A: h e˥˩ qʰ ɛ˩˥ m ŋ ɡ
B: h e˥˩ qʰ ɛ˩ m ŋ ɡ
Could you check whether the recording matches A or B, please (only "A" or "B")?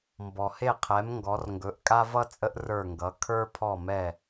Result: A